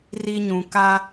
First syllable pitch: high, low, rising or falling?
high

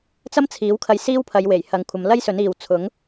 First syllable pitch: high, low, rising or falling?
high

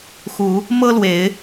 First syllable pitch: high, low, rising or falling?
rising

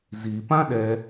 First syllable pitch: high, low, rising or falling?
low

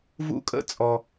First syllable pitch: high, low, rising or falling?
high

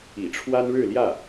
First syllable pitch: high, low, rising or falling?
low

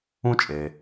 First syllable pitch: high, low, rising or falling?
high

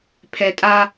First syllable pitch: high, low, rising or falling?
low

